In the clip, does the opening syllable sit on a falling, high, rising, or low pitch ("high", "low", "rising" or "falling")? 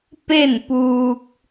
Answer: falling